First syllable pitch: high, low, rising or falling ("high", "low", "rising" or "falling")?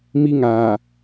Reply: high